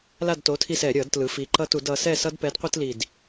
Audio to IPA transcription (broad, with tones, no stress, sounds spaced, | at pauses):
l a˦˨ d t o˨˥ tʰ i˦˨ s ɛ˧˩˧ ɾʲ ʌ˧˩˧ d t l ɯ˩˧ f i˩˧ ǃ ʌ˦ t u˧˩˧ d ʌ˩˧ s ɛ˦˨ s ʌ˦ d p ɛ˨˥ d qʷ e˦ t l i˨˩ d